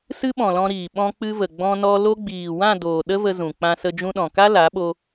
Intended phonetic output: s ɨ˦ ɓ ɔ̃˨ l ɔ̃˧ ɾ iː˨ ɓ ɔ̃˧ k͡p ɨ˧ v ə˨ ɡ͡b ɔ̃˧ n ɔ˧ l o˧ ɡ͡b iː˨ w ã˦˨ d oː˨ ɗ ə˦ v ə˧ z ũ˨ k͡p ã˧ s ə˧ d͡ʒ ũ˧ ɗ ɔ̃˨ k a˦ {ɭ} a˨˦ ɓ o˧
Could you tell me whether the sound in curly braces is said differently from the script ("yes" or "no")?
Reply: yes